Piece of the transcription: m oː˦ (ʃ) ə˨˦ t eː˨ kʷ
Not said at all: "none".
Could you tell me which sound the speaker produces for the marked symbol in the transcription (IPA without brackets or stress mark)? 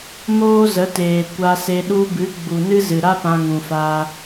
z